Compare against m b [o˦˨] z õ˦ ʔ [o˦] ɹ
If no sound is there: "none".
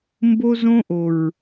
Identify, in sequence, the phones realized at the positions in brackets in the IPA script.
o˦, o˨

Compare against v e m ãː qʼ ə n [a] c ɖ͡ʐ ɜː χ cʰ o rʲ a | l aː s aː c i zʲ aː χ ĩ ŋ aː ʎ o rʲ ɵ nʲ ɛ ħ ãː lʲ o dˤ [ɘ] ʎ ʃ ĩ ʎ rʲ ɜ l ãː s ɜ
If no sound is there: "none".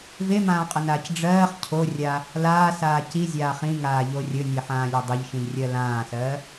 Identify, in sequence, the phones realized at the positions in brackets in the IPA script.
aː, ɘ

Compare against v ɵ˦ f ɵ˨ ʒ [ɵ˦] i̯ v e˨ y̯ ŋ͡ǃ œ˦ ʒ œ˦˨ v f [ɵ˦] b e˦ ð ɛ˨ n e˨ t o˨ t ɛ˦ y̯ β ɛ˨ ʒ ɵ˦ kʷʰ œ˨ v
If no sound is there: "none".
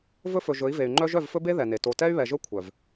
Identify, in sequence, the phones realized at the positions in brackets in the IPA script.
ɵ˨˦, ɵ˦

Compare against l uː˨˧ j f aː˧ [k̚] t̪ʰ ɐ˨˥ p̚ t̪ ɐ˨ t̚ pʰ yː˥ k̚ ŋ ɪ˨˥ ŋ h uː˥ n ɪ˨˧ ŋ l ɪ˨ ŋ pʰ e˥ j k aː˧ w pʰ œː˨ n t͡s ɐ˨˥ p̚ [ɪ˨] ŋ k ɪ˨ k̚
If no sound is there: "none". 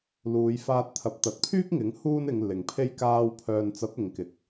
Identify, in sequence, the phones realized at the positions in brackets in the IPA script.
t̚, ɪ˨˧

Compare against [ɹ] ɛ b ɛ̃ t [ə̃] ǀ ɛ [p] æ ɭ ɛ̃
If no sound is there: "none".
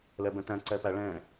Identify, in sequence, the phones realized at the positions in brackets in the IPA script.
l, æ̃, p

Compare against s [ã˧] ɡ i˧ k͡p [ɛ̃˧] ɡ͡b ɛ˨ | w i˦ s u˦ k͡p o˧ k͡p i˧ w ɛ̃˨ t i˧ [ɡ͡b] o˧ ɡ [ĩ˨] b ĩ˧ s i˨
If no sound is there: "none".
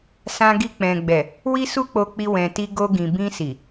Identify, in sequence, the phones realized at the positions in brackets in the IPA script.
ã˧, ɛ̃˨, ɡ, ĩ˨

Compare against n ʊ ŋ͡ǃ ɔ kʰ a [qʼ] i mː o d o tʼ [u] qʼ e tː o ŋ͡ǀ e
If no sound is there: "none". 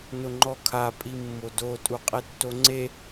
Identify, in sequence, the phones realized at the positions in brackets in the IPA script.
pʼ, u

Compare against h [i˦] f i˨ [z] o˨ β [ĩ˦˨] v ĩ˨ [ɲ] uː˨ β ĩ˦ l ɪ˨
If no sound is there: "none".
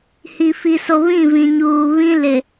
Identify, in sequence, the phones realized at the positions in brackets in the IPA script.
i˨, s, ĩ˦˨, ɲ

